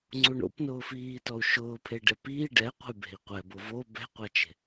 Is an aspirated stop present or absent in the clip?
present